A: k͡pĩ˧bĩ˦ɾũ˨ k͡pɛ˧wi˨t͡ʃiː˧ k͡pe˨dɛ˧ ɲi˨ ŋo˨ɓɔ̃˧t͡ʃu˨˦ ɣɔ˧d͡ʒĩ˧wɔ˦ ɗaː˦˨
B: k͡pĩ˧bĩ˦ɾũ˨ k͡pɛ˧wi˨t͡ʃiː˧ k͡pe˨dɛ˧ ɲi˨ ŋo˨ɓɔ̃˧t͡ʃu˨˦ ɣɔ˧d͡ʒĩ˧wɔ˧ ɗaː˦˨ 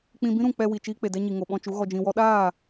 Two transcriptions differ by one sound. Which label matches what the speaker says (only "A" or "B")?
A